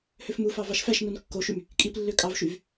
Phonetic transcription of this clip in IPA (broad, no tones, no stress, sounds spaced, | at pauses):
h ø f m u f ɑ v ɑ ʃ f æ ʃ n u n kː o ʃ y m | kʼ i p lː ø kʼ ɑ v ʃ y v